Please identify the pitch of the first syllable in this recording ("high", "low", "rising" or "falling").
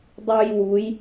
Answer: high